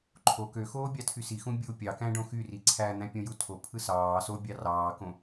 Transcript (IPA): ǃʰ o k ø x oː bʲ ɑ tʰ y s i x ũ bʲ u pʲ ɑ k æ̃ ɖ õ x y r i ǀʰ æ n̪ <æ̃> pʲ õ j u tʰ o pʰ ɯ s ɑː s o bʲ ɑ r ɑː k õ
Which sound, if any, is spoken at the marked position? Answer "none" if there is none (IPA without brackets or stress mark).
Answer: æ̃